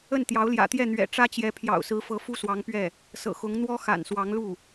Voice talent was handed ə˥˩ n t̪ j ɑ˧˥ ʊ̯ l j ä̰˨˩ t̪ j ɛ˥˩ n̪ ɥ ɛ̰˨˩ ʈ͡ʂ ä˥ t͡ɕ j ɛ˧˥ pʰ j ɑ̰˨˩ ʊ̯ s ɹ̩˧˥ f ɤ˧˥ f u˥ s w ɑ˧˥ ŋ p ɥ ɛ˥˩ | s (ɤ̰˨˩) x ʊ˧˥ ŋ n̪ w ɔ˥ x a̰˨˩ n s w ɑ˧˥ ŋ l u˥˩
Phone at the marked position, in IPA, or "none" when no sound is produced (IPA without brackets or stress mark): ɤ̰˨˩